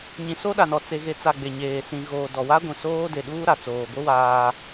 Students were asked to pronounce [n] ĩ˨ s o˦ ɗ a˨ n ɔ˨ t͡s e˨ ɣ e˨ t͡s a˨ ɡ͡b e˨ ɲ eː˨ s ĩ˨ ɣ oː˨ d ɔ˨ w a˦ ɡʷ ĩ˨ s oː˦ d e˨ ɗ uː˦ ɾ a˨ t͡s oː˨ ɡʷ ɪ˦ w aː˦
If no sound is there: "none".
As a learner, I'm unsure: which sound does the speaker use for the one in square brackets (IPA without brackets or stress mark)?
ɲ